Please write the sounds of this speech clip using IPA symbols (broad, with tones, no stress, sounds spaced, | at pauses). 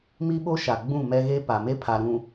m i˦ ɓ o˦ ʃ a˨ ɡ͡b ũ˦˨ m ɛ˦ ɣ e˦ p a˨ m e˦ pʰ a˨ ɾ ũ˨